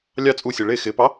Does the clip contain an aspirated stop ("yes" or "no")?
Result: no